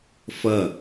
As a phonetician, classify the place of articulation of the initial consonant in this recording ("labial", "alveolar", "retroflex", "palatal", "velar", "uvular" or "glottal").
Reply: labial